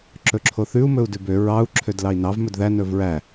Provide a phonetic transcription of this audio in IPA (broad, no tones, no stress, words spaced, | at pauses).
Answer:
ǁɵǁʰoθʉu̯ mɵu̯dʉbø ɹɑu̯ ǁʰødlɑi̯nɑv mɵdðæ nɵvɹæ